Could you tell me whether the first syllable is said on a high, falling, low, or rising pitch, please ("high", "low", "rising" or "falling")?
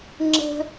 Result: high